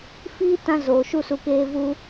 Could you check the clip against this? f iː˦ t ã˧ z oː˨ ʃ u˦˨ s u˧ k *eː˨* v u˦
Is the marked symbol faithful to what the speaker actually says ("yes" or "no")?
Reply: no